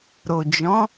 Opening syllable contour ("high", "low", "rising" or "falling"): low